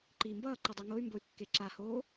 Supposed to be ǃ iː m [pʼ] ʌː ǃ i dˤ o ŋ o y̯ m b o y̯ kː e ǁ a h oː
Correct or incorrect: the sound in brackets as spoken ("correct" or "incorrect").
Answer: incorrect